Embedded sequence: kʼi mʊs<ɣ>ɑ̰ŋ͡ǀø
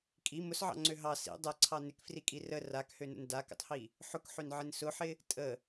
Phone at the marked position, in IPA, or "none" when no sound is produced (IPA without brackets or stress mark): ʕ